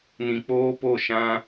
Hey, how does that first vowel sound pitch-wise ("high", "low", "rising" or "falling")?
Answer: low